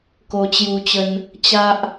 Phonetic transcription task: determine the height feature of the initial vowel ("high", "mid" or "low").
mid